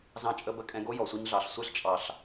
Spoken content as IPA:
z ɑ̃˧ t͡ʃʼ ə˧ b ə˧ kʼ ɛ̃˧ ɡ o˦ j ɔ˨ sʷ i˧ ɲ ɮ ɑ˨ ɬ sʷ ɛ˧ ɬ t͡ʃʼ ɑ˨ ɬ

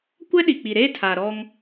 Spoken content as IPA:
kʷ ɛ˦ ɗ i˨ k͡p i˨ ɾ eː˦ tʰ a˨ ɾ ɔ˦ ŋ

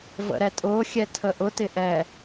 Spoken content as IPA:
v ə̰ ɾ ɛ tʼ ʊː xʲ ɛ tʰ ə ʔ ʊ t ɪ ʔ ɛ

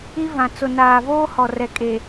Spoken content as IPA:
i˦ v ã˨ t͡s ʊ˨ n aː˨ v oː˦ h ɔ˨ r ɛ˨ kʼ e˨

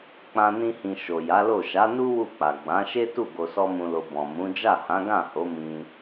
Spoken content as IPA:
k͡p ã˧ n ĩ˧ h ĩ˨ ʃ o˨ j a˨˦ l o˦˨ ʃ a˨˦ n u˦ w u˦˨ k͡p a˨ ɡ͡b ã˨˦ ʃ e˦ t u˦˨ ɡ o˧ s ɔ˦ m ũ˧ l o˧ b ɔ̃˨ m ũ˨˦ d͡ʒ a˦˨ h ã˨˦ ɡ ã˦˨ h o˨˦ m ĩ˧

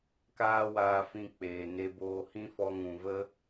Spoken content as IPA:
k aː˦ w aː˧ f ĩ˧ k͡p eː˨ n e˧ b oː˧ h ĩ˦ f ɔ˧ ŋ ũ˨ v ə˦

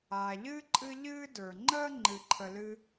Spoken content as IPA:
aː˩ ʎ ɨː˥ ǃʼ ɨ˦ ʎ ɨː˥ d ə˞˩ ŋ͡ǃ əː˥ ŋ͡ǃ ɨ˨ ǃʰ ə˨ l ɨ˦

